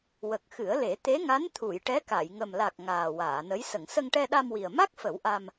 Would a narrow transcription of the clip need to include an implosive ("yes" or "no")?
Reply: yes